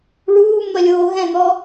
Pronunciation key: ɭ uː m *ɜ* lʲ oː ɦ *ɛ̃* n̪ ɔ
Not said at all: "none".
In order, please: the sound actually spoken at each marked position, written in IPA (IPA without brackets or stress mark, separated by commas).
ɜ, ɛ̃